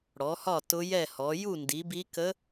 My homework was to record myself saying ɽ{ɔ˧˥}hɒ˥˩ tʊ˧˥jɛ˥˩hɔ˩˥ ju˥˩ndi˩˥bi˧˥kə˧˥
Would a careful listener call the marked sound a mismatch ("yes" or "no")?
yes